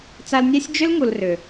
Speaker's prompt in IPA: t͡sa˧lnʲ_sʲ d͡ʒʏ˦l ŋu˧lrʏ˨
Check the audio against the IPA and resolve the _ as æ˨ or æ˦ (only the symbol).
æ˦